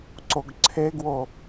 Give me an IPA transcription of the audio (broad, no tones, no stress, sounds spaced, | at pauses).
ǀ o ɡ ǀʰ e ɡ w o